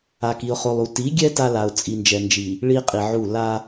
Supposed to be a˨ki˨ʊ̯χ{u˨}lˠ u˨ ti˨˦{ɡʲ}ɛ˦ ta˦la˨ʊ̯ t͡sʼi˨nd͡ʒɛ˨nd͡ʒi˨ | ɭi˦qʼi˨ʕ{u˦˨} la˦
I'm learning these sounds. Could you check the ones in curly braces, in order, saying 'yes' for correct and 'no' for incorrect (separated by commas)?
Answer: no, yes, yes